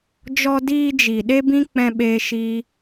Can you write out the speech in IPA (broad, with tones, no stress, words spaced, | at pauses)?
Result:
d͡ʒɔ˧ diː˧d͡ʒi˨ ɗe˦bĩ˦k͡pɛ̃˧ɓeː˧ ʃi˦